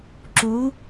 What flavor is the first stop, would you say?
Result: click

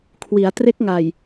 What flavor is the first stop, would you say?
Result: aspirated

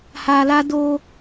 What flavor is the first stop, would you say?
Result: plain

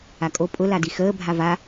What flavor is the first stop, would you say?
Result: ejective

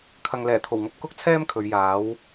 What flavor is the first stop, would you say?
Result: aspirated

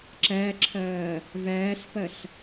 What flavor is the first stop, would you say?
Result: click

